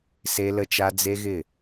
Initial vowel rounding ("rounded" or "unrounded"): unrounded